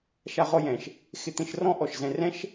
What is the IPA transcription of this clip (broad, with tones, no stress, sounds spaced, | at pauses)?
ʃ a˧ ʁ ɔ˧ j ɛ̃˩ ʃ | x ɪ˧ t̪ ẽ˧ ʃ r ɔ̃˥ ʔ ɔ˩ ʃ z ɛ̃˧ r ɛ̃˥ ʃ